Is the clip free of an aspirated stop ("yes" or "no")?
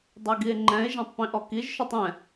yes